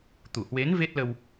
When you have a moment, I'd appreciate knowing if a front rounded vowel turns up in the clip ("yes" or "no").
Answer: no